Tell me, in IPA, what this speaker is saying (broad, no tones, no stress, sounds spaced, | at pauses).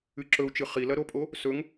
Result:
ɨ ǁ ɵ u̯ t͡ʃ ɨ χ i l ɐ ɾ o pʼ o | s ɵ ŋ